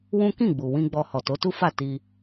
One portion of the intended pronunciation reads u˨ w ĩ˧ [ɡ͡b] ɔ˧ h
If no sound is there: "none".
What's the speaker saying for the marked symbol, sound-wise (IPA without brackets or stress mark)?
ɡ͡b